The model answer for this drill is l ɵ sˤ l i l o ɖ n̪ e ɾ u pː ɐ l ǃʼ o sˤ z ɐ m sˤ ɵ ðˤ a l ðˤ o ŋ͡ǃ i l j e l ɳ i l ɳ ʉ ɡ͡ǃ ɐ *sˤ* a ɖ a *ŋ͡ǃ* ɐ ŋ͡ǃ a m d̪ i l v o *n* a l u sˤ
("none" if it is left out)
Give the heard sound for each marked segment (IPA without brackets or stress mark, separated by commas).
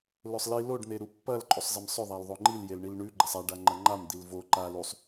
sˤ, ŋ͡ǃ, ǃ